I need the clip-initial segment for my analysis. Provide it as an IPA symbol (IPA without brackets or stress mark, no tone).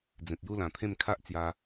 d͡z